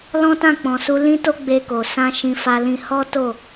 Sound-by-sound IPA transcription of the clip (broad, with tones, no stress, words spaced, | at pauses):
lɔ̃˦tã˦˨k͡pɔ̃˨su˧ lĩ˦to˦ ɡ͡be˧ko˨ sã˧ ʃĩ˧fa˧lĩ˧ hɔ˦ to˦˨